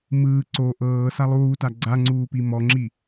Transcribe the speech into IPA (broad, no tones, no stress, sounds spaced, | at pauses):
m ɯː ǀ o ʔ ɤː s a lˠ uː t a ɡ͡ǀ a ŋ͡ǀ uː p i m ɔ ŋ͡ǁ i